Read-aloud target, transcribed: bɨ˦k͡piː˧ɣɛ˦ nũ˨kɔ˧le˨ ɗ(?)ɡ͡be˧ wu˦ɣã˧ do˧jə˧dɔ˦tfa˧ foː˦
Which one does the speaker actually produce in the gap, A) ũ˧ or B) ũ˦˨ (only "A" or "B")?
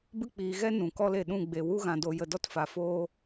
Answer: B